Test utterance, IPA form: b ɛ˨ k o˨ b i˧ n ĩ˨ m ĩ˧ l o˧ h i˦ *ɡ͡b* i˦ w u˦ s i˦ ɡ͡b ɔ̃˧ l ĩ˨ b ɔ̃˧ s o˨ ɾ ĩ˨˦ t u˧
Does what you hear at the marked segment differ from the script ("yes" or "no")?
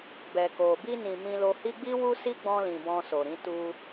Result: no